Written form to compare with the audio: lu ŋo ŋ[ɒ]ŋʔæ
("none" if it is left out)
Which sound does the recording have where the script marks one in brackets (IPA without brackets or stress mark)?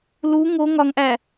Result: ɒ